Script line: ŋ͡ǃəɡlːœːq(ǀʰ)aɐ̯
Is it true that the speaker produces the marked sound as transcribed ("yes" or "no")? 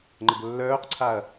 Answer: yes